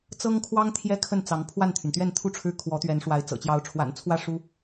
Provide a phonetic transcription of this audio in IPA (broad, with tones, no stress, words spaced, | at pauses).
t͡sɤ˥ŋkʰwɑ˥ŋ t̪ʰjɛ˥kʰə˥˩n t͡sɑ˧˥ŋpʰwa˥˩nt̪ʰy˩nt̪ɥɛ˥˧n t̪ʰu˥˧ʈ͡ʂʰɻ̩˥˩ kʰwɔ˧˥t̪ɥɛ˧˥nʂwa˧˥ɪ̯ t͡sɤ̰˨˩t͡ɕjɑ˧˥ʊ̯ʈ͡ʂʰwa̰˨˩nt͡sʰwä˥˩ ʂu˥